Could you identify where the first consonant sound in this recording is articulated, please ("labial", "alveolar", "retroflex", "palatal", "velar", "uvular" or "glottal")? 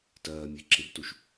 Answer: alveolar